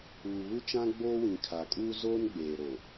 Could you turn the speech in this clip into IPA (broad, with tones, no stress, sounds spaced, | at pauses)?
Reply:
uː˨ β u˦ t͡ʃ ã˦ ɡ͡b oː˦ w ĩ˨ kʰ a˨ kʼ uː˦ z oː˦ n ɡ͡b eː˨ ɾ o˨